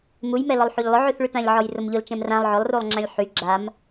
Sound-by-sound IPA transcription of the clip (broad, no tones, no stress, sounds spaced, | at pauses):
m u j m ɛ l ɔ lˠ ħ u ʎ lˠ ʊ ʕ y θ ɭ y t ã ʎ ʕ ɔ j r ʊ m ʎ ʊ l t͡ʃ ɛ̃ m r ã lˠ ʕ ʊ lˠ r u lˠ ŋ͡ǁ ã lʲ ħ y ɡ͡ǁ a m